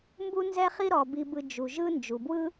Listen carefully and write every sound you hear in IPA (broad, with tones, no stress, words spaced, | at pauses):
mbu˦ nzɛ˦χi˦ ɾɔ˩bi˨bɯ˨ d͡ʒu˩ʒɯ˦ nd͡ʒu˩bwɯ˥